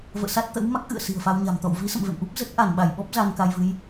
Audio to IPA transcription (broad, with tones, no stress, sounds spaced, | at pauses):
v ə̰ː˧˨ s a˦˥ t̚ t̪ ə̰˧˥ w m a˦˥ k̚ ʔ ɨ̰˧˨ ə̯ s i̤˨˩ ə̯ f a˧ w ɲ a̤˨˩ m t̪ ɔ̰˧˨ w v i˨˦ s ə̰˧˨ m v ḛ˧˨ m ʔ u˦˥ p̚ z ə˦˥ t̚ ʔ a˧˩ n ɓ a˧˩ j ɓ ɔ˦˥ p̚ z a˧ n k a˧ j v ɨ˨˦ j